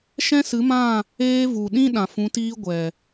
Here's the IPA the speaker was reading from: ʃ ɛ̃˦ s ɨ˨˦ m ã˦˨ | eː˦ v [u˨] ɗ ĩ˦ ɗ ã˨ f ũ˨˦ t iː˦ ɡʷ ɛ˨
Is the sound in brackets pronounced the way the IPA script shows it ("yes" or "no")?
yes